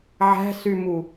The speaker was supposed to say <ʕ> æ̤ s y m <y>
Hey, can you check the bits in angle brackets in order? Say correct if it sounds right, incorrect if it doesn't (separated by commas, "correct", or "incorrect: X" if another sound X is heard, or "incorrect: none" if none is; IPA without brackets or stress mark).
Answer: correct, incorrect: u